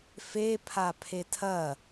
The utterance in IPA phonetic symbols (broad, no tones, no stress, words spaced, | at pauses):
fepʰa pʰetʰɐ